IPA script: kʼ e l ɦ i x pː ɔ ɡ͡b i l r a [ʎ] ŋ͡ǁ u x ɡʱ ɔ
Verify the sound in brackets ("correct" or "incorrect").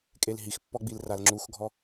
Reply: incorrect